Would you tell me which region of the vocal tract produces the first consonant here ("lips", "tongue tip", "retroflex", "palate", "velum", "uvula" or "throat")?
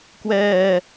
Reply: velum